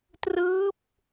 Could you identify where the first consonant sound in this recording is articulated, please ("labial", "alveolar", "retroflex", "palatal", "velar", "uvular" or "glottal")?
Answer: alveolar